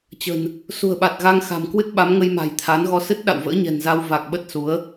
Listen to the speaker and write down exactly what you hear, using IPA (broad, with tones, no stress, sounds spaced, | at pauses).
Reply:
t͡ɕ ə̤˨˩ n | s ṳ˨˩ ə̯ ɓ a˨˩ t̚ ɣ a˧ ŋ x a̤˨˩ m k w ɨ˦˥ t̚ ɓ a˨˦ m ŋ ə˧ j m a̤˨˩ j t̪ʰ a˨˦ n ɣ ɔ˧ s ɨ˦˥ t̚ ɗ a̰˧˨ w v ə̰ː˧˥ ɲ ɛ̤˨˩ n z a˧ w v a˨˩ k̚ ɓ ə˦˥ t̚ s u˨˦ ə̯